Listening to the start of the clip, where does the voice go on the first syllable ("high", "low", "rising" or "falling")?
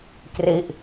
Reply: falling